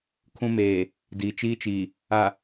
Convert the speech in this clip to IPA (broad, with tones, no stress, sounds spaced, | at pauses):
kʰ ũ˦ m eː˨ | d iː˨ t͡ʃ iː˦ t͡ʃ iː˨ | a˨